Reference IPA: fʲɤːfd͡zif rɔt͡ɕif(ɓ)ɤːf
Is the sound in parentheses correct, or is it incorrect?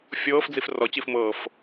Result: incorrect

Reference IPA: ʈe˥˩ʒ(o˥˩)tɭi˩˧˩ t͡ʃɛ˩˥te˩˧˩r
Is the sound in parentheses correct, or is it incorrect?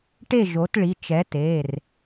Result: incorrect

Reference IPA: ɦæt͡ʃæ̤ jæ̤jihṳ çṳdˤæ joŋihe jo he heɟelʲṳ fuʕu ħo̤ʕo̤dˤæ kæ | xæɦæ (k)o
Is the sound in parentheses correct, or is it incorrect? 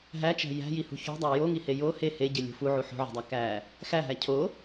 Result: incorrect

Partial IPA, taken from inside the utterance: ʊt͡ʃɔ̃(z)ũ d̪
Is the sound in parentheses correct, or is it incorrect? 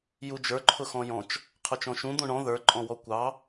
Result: incorrect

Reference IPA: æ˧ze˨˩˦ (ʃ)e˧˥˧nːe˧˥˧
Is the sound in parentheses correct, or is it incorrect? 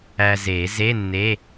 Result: incorrect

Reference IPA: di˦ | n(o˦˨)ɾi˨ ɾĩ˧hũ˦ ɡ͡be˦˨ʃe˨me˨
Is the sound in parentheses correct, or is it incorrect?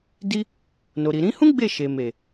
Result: incorrect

